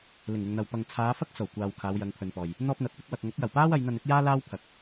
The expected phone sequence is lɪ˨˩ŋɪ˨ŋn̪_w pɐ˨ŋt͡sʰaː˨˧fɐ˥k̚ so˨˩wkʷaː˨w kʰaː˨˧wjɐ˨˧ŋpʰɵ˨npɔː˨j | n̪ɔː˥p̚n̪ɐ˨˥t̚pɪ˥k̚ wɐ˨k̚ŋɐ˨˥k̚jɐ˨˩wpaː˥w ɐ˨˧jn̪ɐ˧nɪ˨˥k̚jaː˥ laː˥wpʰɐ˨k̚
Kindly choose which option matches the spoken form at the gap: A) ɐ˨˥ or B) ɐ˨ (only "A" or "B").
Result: B